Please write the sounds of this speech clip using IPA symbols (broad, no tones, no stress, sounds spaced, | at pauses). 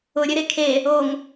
ʊ ɾʲ ɘ ɾ e kʰ e | o ŋ